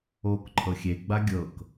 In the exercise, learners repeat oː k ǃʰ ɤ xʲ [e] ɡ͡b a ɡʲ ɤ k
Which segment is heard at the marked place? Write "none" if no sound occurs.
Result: e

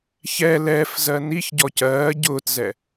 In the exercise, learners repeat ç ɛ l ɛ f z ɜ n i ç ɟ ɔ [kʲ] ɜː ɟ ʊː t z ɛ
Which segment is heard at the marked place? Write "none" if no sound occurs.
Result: c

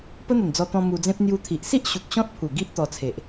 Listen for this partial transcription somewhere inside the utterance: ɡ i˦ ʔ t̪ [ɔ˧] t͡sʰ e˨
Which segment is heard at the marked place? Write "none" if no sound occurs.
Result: ɔ˧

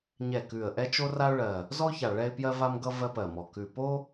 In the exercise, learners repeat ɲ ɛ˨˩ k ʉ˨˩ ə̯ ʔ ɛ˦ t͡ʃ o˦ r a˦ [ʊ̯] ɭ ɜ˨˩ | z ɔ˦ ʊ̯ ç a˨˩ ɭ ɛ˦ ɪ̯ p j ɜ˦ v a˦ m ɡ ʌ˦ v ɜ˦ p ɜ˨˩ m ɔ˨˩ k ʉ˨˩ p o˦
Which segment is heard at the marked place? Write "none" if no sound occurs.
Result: ʊ̯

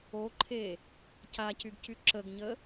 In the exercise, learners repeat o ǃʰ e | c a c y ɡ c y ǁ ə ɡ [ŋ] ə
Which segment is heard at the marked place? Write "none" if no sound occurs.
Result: ɲ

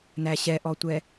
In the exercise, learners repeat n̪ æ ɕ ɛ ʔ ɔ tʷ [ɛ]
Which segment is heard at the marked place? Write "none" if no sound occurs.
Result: ɛ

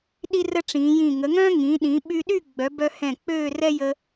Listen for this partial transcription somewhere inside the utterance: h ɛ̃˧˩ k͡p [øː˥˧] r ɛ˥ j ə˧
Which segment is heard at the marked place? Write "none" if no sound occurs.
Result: øː˥˧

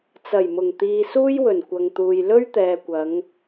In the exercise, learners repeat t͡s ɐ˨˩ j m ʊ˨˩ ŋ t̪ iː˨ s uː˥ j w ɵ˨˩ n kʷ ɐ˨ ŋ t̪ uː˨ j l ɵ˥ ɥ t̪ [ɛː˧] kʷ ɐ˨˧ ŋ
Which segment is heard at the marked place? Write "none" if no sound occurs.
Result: ɛː˨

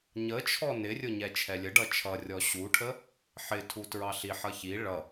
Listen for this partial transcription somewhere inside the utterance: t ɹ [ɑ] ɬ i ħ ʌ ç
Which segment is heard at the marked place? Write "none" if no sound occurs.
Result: ɑ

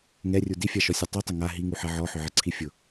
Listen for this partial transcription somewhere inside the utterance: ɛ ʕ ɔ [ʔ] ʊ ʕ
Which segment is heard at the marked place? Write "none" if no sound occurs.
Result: ħ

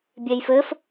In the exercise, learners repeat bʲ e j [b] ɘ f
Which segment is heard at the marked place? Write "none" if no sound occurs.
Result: f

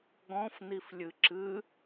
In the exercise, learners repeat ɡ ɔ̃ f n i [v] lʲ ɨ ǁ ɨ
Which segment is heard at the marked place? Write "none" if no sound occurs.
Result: f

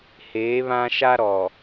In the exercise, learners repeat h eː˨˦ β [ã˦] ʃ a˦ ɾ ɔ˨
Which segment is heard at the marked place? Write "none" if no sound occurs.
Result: ã˦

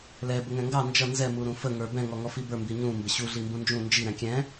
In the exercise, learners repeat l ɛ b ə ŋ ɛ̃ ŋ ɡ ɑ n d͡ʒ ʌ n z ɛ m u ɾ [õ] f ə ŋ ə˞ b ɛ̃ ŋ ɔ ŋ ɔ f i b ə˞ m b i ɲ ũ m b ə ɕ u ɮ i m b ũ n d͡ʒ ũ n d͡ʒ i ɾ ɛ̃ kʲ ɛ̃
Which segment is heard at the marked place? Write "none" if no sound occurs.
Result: ũ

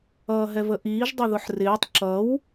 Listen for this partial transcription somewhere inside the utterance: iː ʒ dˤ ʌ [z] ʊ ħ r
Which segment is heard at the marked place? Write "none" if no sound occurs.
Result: ð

